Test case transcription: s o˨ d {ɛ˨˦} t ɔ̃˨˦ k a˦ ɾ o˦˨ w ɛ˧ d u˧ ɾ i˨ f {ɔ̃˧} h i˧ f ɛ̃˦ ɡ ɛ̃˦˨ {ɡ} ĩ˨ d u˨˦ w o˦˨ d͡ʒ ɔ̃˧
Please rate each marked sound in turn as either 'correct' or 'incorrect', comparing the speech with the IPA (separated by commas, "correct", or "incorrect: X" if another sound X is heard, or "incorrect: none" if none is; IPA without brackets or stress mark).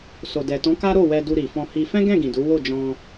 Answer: incorrect: ɛ˨, correct, correct